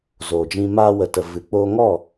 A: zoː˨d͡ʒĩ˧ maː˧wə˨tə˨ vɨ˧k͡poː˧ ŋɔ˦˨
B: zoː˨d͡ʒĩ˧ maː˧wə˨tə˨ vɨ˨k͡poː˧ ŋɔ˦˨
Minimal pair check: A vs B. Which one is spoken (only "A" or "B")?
B